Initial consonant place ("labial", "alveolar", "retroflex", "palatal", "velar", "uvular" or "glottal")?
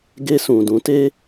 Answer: velar